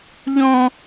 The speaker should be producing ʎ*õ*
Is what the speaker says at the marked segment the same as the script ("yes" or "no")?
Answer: yes